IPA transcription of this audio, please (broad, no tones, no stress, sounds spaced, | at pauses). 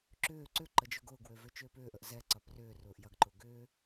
ǁ ʏː ǀ ʏ ǃ ə d͡ʒ ʊ ɡ ʊː ɡ w ø v ø t͡ʃ ʏː p ʏː ʔ ə ʔ z ɛ ǀ ɐ p r ʏː r ʊː ʔ j ɐ ɡ ǃ ʊ ɡ ʏː